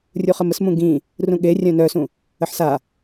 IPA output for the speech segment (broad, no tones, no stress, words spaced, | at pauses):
rʲuχəməsmũ ɡĩ | rũɠerʲœ̃ nœsũ | əħsa